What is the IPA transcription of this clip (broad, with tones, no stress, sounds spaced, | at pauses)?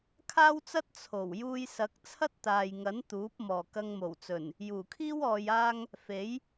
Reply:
kʰ aː˥ w t͡s ɐ˥ t̚ t͡sʰ o˨˩ w j uː˧ j s ɐ˨˥ k̚ t͡sʰ ɐ˥ t̚ t̪ aː˨ j ŋ ɐ˨˥ n t̪ uː˨˥ p̚ m ɔː˨˩ k ɐ˧ ŋ m o˨˩ w t͡s ɵ˨˩ n | j uː˨˩ kʰ iː˥ w ɔː˧ j aː˥ ŋ | f e˨˥ j